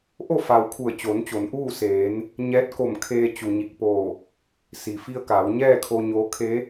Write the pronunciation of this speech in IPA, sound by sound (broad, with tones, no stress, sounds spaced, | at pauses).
ʔ o˥˨ f a˩ w kʰ u˧˩ ə̯ t͡ɕ oː˩˧ n t͡ɕ o˩˧ n ʔ uː˥˨ s eː˩˧ n | ɲ ɛː˧˥ t̚ k o˧˩ m kʰ eː˧ t͡ɕ u˩ ɲ i˧˩ k̚ p oː˧˩ | s i˩ f i˧ ə̯ k aː˩˧ w ɲ ɛː˥˨ kʰ o˧ ɲ oː˧˥ kʰ e˧˥